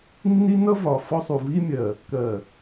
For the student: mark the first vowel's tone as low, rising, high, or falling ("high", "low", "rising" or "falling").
high